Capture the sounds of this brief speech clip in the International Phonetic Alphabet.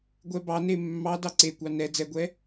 ɡʷ ɛ b ɑ n e mː ɑ d ɑ ǀ e kʷ ɑ n ɛ d͡z ɛ ɡʷ ɛ

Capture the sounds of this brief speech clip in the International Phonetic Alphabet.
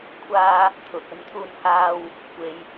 kʷʰ aː˧ | t̪ʰ ʊ˨ k̚ ɵ˧ n t̪ʰ uː˧ n h aː˧ w | kʷ e˨ j

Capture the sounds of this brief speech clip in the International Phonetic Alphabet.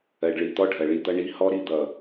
ɜ˨ ɖ ɭ i˨ t̪ ɔ˦ ɖʱ ɜ˨ ɭ i˦ d̪ ʌ˦ ɳ i˦ h ɔ˦ ɾ i˧ d̪ ʌ˨

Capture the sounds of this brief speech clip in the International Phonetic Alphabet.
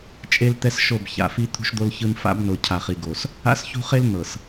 t͡ʃʼ e˦ l t̪ ɛ˦ s ʃ o˦˨ b ç a̰˨ f i˦ t̪ʰ ṳ˦ ʃ d̪ o˦ l ç ɯ˦ n f a̰˦ b n o˨ cʰ a˨ χ i˨ ɡ o˨ s | a̰˦ s ç ṳ˦ χ e˦ l n̪ ɤ˨ s

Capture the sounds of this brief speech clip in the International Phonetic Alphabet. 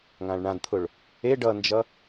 ŋ ã ɭ ɳ ã d t̪ʰ ʊ ɭ | e ɖ ʌ n d͡ʒ ʌ

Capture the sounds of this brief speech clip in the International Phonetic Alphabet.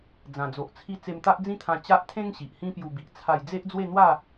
d͡z ã˨˩ d͡z o˨ ʔ t͡sʰ i˧ t͡s e˧ m t̪ a˦ ʔ d͡z ĩ˦ t̪ʰ ã˧ t͡ɕ a˦ ʔ t̪ʰ ẽ˦ ŋ ɕ i˨ ʔ h ĩ˦ p j u˧ b i˨ ʔ t͡sʰ a˧ j d͡z e˦ ʔ d͡z w e˥˧ n̪ w a˥˧

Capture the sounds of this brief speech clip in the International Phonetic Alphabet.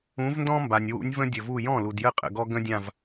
ũ˨˦ v n d ɔ̃˦ m b a˩ nʲ w ṵ˨˦ nʲ v ə̃˦ dʲ ə˩ v u˧˩ j ɔ̃˥˩ l u˩ d j ə˥˩ qʼ ə̰˩ ɡ ɔ˦ ɡ ə̃˦ dʲ ã˧˩ v

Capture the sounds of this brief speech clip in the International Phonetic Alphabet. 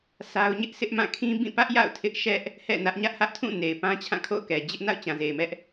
sʰ a˦ ʊ̯ ɲ ɪ˦ ʔ s ɪ˦ ʔ m ã˦˨ kʰ ĩ˦ b ĩ˦˨ p ä˦ ʔ j a̰˦˨ ʊ̯ tʰ ɪ˦ ʔ ʃ ɛ˦ ʔ | h ɛ̰˦˨ n ä˦ ʔ ɲ ä˦ ʔ h ä˦ ʔ tʰ ũ˦˨ n e˨ ɪ̯ p ã˦ t͡ɕʰ ã˦˨ kʰ o̰˦˨ ʊ̯ k ɛ˨ d͡ʑ ɪ˦ ʔ n a̰˦˨ ʊ̯ t͡ɕ ã˨ z e˨ ɪ̯ m ɛ˦ ʔ

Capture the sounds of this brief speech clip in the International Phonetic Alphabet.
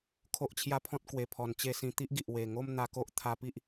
kʰ o˦ ʔ t͡ɕʰ j a˦ pʰ ɔ̃˦ t̚ k w e˧ pʰ ɔ˧ n t͡ɕ e˥˧ s ĩ˧ t̪ i˦ ʔ ɡ i˨ ʔ w e˨˩ ŋ o˥˧ m n̪ a˧ k o˦ ʔ t̪ʰ a˧ p i˦ ʔ

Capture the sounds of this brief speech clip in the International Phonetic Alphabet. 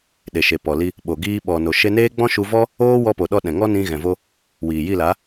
ɗ e˨ ʃ e˨ p ɔ˨ l i˧ | ɓ o˨ ɡ iː˧ ɓ ɔ˨ n o˨ ʃ e˧ n eː˦ ɡ͡b ɔ̃˦ ʃ u˧ v ɔ˦ | oː˦ w ɔ˧ p o˨ ɗ ɔ˧ ɗ ɛ̃˨ ŋ ɔ˦ n ĩ˧ ɣ ɛ̃˨ v o˧ | w iː˨ j i˦˨ l a˨˦

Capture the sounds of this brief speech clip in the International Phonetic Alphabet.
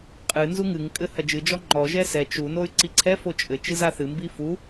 qʼ ɨ n z u ŋ ɨ ŋ kʼ ɘ h ɐ d͡ʒ ɨ d͡ʒ ɔ ŋ͡ǃ ɔ ʒ ɛ s ɛ t͡ʃ u n o y̯ ǀ i ǀʰ ɛ f o t͡ʃʼ ɘ t͡ʃ ɨ z a θ ɨ m b i f u

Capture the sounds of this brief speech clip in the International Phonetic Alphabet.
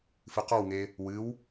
f ɨ q ɔ w ŋ e | w ɨ w

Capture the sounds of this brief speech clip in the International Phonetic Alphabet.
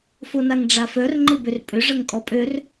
f o n a ŋ ɖ͡ʐ a f œ r ŋ͡ǃ ɪ b ʏ r pʼ ʏ ʐ ə ŋ kʼ ɔ pʼ ø r

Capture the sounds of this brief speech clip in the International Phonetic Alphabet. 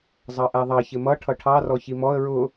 zˤ ɑ ʔ æ ðˤ ɑ ç ɪ m ʌ ʈʰ ʌ ʈʰ ɑ r ɔ ç i m ɔ ə̯ ɹ ʊ

